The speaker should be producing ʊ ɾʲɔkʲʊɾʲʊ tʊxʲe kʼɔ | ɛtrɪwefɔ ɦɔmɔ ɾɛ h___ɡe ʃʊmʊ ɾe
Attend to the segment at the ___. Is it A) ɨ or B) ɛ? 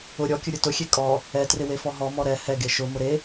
B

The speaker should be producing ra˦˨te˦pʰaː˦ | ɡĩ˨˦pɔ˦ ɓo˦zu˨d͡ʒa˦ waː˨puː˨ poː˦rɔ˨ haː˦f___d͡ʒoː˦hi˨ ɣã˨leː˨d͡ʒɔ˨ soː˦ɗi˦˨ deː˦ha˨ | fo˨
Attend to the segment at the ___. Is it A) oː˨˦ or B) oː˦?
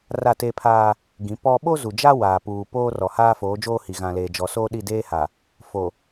A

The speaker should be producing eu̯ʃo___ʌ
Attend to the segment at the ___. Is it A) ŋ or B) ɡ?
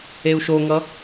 A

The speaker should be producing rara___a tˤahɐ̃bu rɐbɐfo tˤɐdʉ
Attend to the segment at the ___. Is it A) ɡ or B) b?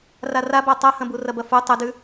B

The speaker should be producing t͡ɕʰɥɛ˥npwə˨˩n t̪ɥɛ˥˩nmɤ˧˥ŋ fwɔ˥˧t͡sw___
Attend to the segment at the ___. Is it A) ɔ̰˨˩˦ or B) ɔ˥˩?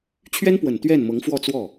B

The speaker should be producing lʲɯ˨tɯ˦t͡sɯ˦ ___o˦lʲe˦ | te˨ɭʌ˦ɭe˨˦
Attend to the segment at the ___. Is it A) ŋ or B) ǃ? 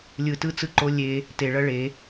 B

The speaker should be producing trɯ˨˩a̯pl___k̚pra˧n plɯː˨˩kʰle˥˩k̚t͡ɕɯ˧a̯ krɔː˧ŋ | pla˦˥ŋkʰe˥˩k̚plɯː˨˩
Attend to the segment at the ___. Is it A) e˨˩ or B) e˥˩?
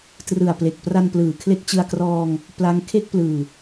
A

